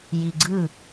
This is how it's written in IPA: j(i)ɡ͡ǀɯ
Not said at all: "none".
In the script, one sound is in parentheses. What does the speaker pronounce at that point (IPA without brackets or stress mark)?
i